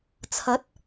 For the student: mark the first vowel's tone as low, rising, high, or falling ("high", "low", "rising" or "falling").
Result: rising